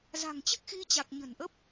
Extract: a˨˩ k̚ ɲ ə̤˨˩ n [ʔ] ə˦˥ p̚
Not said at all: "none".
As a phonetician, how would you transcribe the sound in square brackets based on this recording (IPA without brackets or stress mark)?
ʔ